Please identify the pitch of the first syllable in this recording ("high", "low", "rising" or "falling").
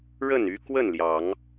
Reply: falling